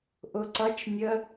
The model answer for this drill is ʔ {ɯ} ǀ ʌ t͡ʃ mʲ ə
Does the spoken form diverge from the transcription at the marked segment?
yes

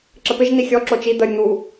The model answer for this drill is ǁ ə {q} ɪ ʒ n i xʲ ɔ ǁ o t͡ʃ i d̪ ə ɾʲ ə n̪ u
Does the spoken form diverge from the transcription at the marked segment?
yes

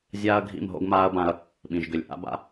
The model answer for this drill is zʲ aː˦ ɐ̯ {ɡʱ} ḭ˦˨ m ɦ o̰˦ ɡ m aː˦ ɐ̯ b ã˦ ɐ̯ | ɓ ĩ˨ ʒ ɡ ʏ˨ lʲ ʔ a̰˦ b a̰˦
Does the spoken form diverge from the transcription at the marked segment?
no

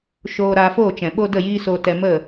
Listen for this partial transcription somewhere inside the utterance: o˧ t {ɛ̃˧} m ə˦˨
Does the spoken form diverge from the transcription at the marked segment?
yes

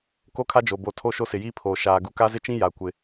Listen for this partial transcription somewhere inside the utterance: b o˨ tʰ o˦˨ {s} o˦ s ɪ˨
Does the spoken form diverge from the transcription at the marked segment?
yes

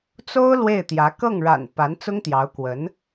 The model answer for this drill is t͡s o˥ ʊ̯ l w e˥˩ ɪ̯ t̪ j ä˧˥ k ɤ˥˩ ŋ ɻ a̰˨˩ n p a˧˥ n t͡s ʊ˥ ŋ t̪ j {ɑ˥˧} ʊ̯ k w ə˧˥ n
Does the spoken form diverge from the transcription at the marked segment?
yes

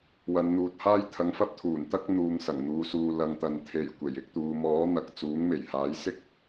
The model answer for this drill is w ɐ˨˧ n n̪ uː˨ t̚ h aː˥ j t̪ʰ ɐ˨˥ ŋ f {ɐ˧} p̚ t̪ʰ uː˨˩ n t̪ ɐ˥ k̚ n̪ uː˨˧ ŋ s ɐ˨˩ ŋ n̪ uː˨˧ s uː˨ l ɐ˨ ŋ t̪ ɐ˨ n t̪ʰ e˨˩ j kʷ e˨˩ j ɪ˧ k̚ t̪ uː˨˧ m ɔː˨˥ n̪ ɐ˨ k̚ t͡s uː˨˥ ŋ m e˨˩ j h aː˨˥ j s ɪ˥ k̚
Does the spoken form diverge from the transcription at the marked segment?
no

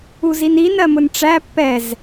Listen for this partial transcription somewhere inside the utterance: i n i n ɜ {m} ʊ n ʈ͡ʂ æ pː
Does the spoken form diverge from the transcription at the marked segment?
no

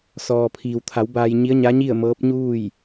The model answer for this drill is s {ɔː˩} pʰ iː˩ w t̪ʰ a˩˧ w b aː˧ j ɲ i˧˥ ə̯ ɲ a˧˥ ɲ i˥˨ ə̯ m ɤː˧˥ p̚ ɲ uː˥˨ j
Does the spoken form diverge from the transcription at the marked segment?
no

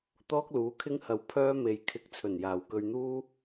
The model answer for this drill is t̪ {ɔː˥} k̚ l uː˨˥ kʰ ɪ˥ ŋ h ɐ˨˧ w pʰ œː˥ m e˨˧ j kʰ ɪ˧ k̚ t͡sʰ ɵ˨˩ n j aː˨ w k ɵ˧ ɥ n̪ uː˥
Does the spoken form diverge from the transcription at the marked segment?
no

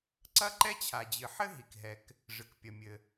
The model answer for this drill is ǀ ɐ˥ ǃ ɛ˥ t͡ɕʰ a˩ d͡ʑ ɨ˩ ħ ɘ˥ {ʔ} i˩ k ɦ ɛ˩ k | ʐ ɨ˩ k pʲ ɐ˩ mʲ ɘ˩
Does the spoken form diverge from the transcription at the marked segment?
yes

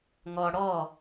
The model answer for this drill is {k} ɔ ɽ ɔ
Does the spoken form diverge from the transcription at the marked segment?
yes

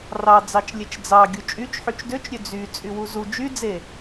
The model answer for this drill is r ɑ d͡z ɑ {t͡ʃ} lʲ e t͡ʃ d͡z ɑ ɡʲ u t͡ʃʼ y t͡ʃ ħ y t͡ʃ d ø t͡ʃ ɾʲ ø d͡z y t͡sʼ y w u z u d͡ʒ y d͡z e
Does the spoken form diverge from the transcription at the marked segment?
no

